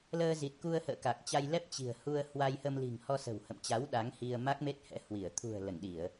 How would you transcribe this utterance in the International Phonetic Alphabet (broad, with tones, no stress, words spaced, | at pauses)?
ləː˧zi˨˩t̚ku˧ə̯hə̰ː˧˨ ka˨˩k̚t͡ɕa˧jlɛ˦˥p̚ t͡ɕi̤˨˩ə̯hu˧ə̯ hwa˧jhə˧m li̤˨˩ŋ hɔ˧sə̤˨˩whə̰˧˨mt͡ɕa˨˦w ɗa˨˦ŋhi˧ə̯ ma˦˥k̚me˦˥t̚hɛ̰˧˥ hwi˧˩ə̯ t̪ʰṳ˨˩ə̯ lə˧˩nɗi˧˩˨ə̯